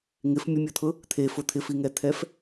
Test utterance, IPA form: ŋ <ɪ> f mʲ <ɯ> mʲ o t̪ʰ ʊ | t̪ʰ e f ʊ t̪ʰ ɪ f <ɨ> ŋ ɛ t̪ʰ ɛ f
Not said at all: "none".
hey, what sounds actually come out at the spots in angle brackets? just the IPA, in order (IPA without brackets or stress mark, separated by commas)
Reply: ɪ, ʊ, i